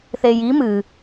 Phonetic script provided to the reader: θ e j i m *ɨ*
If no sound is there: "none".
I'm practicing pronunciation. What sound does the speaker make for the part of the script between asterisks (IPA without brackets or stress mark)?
ɨ